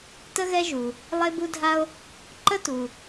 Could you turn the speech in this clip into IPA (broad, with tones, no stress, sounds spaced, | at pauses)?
t ə˥ ɣ ɛ˥ ʒ u˩ | lˠ e˥ b u˥ dʱ a˥ o̯ | ǃ ə˥ t u˩